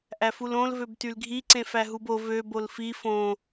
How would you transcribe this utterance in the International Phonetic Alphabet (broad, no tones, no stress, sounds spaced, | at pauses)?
ʔ æ f u l õ l v ø b t y l ɡʱ i ǀ ẽ f æ ɦ u b o v ø b o l f i f õ